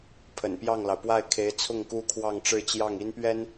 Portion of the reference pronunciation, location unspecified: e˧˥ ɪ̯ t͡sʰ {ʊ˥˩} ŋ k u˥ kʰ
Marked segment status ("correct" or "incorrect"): correct